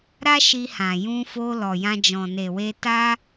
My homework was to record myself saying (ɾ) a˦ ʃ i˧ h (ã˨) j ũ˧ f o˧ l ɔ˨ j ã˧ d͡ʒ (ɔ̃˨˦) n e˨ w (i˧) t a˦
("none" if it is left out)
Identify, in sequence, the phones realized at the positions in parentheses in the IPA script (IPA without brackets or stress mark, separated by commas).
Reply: ɾ, ã˨, ɔ̃˨, e˧